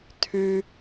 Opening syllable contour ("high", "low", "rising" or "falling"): high